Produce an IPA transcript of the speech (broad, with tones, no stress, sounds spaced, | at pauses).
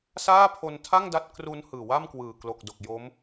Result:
s aː˥˩ pʰ o˧ n tʰ a˥˩ ŋ d a˦˥ t̚ k r u˦˥ n h ɯː˨˩ w a˥˩ m k w ɯː˨˩ k l o˨˩ k̚ d o˨˩ k̚ j o˦˥ m